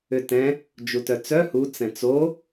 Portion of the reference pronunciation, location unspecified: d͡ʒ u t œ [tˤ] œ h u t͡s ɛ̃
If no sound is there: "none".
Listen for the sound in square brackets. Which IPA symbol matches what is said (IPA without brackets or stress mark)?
t͡s